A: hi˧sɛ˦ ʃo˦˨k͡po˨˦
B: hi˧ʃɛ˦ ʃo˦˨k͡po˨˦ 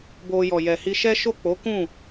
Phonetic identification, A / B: B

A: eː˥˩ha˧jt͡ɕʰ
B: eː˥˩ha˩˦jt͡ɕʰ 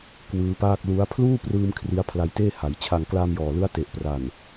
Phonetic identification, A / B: B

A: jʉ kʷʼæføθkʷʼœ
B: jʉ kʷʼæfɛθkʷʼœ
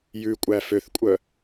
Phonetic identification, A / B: A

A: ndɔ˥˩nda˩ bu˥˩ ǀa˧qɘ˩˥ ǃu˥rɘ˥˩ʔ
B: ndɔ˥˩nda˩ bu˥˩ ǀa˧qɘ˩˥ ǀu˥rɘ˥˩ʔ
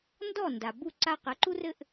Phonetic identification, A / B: A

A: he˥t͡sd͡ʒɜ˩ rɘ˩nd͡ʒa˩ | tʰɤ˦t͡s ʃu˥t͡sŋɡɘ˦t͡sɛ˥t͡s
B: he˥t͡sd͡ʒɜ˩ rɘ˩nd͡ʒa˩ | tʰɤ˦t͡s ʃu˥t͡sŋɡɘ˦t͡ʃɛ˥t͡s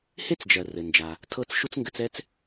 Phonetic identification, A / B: A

